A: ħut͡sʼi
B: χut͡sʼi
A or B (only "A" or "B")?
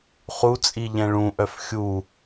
B